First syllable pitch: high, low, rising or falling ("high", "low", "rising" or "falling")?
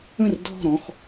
falling